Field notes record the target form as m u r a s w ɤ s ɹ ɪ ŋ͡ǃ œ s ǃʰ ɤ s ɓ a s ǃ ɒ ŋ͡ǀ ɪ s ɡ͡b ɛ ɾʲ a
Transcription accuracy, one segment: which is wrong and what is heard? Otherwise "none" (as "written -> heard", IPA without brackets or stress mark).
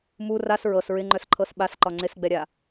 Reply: w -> ɹ